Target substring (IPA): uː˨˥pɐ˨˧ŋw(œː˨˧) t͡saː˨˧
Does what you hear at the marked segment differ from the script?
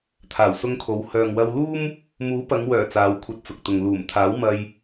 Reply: yes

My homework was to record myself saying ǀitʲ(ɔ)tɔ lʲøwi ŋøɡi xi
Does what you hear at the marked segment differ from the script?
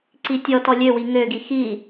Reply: no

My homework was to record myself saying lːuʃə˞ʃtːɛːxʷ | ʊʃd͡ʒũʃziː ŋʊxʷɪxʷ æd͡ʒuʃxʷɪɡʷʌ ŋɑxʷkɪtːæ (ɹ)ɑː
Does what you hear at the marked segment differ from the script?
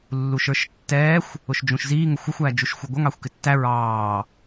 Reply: no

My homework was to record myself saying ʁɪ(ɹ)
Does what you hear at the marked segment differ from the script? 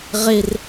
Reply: yes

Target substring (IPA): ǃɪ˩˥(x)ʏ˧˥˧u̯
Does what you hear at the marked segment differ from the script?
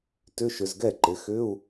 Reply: no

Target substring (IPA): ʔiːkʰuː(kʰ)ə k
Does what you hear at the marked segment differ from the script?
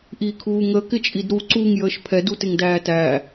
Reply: yes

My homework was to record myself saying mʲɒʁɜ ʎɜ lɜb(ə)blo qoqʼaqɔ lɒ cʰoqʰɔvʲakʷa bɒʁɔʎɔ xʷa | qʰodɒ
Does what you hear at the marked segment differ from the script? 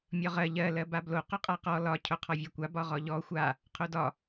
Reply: yes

